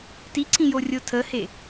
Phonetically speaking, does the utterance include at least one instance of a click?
yes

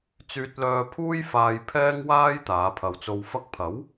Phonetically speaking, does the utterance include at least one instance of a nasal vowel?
no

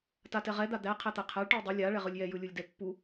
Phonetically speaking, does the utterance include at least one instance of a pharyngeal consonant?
no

